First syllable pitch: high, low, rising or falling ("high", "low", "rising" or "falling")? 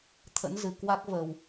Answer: rising